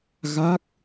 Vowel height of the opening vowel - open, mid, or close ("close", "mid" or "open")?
open